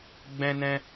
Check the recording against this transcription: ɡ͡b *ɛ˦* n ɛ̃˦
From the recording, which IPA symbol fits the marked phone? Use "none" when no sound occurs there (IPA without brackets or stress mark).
ɛ̃˦